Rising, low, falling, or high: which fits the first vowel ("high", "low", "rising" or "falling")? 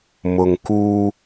low